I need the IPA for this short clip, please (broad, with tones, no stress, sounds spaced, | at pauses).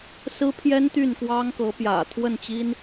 s ɹ̩˥ pʰ j ɛ˥ n t̪ y˥˩ n k w ɑ˥ ŋ k ɤ˧˥ p j ä̰˨˩ t̪ʰ w ə˥˩ n t͡ɕ i˥ n